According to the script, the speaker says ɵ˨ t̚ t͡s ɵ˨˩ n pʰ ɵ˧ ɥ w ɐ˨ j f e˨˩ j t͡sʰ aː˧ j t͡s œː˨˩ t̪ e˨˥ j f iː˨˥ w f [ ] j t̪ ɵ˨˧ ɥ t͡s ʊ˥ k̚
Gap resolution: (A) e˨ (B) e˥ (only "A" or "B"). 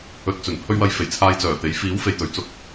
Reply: A